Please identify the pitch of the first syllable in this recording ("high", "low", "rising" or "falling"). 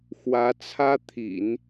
rising